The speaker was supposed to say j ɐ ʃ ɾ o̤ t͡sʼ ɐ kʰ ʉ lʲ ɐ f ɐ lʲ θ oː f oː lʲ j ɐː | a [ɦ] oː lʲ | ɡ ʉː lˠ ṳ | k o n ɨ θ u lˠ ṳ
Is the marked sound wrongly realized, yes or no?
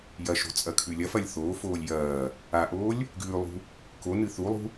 yes